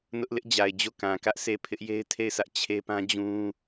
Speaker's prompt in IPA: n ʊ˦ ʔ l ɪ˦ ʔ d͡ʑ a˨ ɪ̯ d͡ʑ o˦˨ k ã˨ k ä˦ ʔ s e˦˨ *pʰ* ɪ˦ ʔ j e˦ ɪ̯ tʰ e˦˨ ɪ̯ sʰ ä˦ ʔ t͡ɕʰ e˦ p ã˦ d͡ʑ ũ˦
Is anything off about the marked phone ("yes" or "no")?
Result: no